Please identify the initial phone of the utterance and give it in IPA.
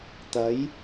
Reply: t̪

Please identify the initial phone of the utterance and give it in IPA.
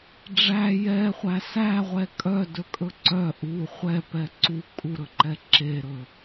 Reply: ɖ͡ʐ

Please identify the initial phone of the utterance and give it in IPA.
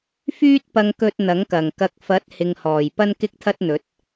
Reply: f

